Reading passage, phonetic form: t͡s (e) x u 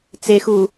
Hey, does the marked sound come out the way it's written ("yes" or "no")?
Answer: yes